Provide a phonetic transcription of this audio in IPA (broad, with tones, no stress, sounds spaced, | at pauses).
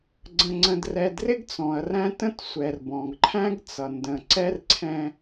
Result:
ɡ͡ǀ ə̃˨ ŋ͡ǀ ə̃˨ d r ɛ˨ d r ɪ˦ ɡ t͡s ɔ̃˨ ɐ̯ r æ̃˦ t ə̃˦ t sʷ ɛ˨ r b ɔ̃˨ ɡ ǃʰ æ̃˦ ɡ t͡s ʌ˨ n d ə̃˨ ǀ ɛ˦ r ǀʰ ɛ̃˦